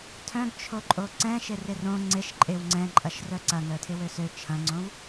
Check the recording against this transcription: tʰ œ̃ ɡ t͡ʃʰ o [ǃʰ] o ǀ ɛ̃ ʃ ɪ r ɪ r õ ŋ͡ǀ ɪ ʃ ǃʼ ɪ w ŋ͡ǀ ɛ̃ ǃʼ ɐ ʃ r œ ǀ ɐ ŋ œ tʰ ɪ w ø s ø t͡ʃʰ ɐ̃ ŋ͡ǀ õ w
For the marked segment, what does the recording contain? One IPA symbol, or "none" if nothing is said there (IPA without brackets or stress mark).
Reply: ǃʼ